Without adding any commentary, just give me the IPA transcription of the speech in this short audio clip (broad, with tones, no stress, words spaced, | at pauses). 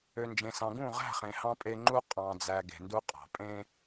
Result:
ø˨nd͡ʒẽ˨ sɑ̃˨ɡũ˦˨ʁæ̤˦˨ χẽ˨ hɑ̃˦pʼe˦ ŋ͡ǃu˦ qʼɑ̃˨d͡zæ˨ ɡe̤˨ndu˦qʼɑ̤˨ pʼẽ˦